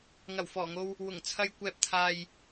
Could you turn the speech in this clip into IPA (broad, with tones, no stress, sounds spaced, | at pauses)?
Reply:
ŋ ɐ˨˩ w f ɔː˨˩ ŋ o˧ w | w ʊ˨˩ ŋ t͡sʰ ɐ˨ j kʷ ɛː˨ p̚ t̪ʰ aː˨ j